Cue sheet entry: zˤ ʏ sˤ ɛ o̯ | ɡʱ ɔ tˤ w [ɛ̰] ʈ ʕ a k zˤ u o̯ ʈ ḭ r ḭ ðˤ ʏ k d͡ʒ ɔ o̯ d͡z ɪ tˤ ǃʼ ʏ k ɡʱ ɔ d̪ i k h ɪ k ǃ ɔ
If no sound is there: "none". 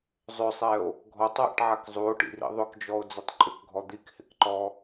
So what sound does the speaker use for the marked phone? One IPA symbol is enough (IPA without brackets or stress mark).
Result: ɛ̰